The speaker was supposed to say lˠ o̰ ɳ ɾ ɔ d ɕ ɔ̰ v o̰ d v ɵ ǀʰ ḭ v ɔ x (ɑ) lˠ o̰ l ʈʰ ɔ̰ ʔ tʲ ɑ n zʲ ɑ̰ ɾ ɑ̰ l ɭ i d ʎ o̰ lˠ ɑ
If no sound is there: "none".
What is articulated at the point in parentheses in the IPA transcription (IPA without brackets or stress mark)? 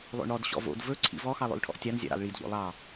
ɑ